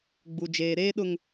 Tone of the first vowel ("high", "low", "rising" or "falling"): high